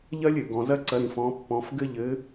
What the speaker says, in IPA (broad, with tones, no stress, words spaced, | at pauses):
ʎɐ˥lʲ ɘ˩˧ɡɔ̃˧zɐ˥ǀɐ˧˥ ɾĩ˧fɔ̃˧˥pːɔ̃˧˥f ɡɘ˥ʎɘ˧˥